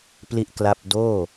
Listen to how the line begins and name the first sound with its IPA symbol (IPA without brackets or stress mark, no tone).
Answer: p